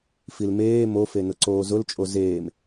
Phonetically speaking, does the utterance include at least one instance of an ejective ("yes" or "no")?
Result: yes